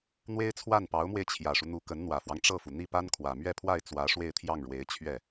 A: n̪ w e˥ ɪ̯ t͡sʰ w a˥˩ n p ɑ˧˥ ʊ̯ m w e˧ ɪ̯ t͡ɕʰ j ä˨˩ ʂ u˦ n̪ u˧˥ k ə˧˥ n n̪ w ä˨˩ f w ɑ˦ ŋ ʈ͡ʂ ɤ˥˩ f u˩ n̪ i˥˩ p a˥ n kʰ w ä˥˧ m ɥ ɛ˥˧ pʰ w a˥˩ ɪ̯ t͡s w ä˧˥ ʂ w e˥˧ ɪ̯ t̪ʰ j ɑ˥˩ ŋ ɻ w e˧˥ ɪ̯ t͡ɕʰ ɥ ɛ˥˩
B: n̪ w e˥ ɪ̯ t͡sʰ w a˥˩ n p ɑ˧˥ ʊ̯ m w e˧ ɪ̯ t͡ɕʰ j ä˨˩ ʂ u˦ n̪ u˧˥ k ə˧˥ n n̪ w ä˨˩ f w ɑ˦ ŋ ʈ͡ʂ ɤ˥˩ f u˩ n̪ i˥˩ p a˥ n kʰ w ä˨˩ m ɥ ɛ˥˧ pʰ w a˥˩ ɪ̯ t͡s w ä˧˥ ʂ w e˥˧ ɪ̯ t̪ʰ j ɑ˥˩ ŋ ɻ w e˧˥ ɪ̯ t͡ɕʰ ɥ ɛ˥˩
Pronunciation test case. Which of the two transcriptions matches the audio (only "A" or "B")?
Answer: B